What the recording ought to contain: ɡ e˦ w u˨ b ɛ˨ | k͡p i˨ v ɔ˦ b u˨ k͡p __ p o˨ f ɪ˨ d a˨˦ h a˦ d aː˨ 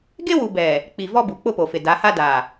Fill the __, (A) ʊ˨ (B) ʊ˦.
B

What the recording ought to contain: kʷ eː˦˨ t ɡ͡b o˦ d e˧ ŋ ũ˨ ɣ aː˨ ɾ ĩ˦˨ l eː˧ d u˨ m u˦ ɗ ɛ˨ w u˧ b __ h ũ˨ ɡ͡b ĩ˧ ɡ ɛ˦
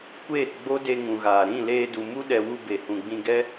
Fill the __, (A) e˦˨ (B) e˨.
B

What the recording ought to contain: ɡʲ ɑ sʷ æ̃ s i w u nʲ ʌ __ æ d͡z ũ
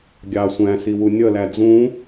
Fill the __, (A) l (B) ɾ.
A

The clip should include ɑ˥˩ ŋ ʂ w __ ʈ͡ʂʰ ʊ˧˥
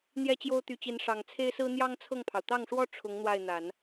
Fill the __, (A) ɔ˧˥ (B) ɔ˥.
B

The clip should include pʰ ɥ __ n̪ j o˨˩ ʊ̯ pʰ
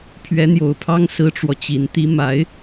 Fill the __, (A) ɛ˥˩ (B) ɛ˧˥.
B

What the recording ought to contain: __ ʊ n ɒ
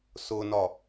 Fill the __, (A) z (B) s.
B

